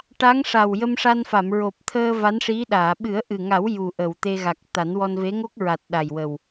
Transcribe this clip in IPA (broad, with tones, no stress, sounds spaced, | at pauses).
ʈ a˧˥ ŋ ʂ a˨˩ w j ə˧ m ʂ a˧ n f a˨˩˨ m ɹ o˨˩ p̚ t̪ʰ əː˧ v a˧˥ n ʂ i˧˥ ɗ aː˨˩˨ ɓ ɨ˨˩˦ ə̯ ʔ ɨ˨˩ ŋ a˨˩˦ w j u˨˩ ʔ ə˨˩˨ w t̪ e˧ ɣ a˨˩ k̚ t̪ a˨˩˦ n w ɔ˧ n v e˧˥ ŋ o˦˥ k̚ ɹ a˨˩ t̚ ɗ a˨˩ j w ə˨˩ w